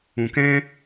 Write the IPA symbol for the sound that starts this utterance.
ũ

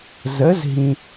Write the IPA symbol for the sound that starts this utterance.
z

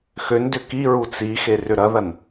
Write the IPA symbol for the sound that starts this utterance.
x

